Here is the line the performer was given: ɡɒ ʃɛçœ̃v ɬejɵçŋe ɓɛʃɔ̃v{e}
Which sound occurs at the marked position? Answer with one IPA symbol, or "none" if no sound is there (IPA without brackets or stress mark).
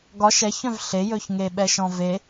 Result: e